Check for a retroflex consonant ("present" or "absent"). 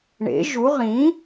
present